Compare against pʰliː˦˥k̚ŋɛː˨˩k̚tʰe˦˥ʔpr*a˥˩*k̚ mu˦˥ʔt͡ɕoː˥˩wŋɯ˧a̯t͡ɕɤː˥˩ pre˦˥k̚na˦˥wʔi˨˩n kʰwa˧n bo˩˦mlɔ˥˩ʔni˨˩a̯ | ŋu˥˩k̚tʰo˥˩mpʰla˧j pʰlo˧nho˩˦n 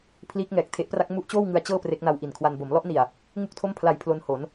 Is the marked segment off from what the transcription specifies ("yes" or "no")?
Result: yes